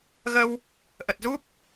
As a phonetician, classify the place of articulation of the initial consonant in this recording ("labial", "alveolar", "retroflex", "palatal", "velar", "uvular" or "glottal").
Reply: velar